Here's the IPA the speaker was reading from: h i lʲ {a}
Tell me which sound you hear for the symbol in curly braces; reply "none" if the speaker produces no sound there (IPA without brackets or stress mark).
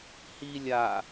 a